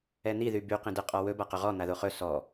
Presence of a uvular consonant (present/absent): present